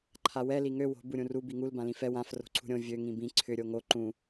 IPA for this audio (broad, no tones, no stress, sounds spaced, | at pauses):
ǃʰ a w ɛ l i ŋ ø w o̤ b u ɾʲ ũ r u b i ŋ u l b ã l ĩ f ɛ w ã f r o̤ ǀʰ ṳ ɾʲ õ vʲ ø ŋ ĩ b ĩ ǀʰ ʏ ɾʲ o ŋ o ǃ ũ